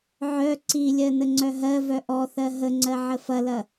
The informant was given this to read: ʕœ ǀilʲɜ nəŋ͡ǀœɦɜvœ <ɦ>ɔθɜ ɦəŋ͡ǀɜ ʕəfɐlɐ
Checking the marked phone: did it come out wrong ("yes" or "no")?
yes